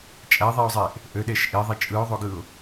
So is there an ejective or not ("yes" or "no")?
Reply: yes